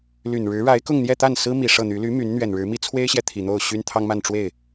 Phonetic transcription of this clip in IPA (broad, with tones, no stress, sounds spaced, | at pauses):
l y˨˩ n ɻ ɻ̩˧˥ ɻ a˧˥ ɪ̯ k ʊ˥˧ ŋ n̪ j ɛ˥˧ t̪ a˥˩ n s ɹ̩˥ m i˨˩ ʂ ɤ˥˩ n̪ y˧˥ l y˧˥ m y˧˥ n n̪ ɥ ɛ˨˩ n ɻ ɻ̩˧˥ m i˥ t͡sʰ w e˥ ɪ̯ ɕ j ɛ˨ t̪ʰ i˨˩ n̪ o˥˩ ʊ̯ ɕ y˥ n t̪ʰ ɑ˥ ŋ m a˥˧ n ʈ͡ʂ w e˥˩ ɪ̯